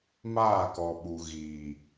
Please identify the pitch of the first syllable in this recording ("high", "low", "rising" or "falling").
falling